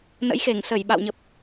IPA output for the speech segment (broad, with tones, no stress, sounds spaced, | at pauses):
n ə̰˧˥ j x e˧˩ ŋ s ə˧˩ j ɓ a̰˧˨ w ɲ ə˨˩ p̚